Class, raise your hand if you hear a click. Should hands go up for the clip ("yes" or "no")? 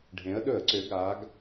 yes